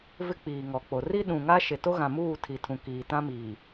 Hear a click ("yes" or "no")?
no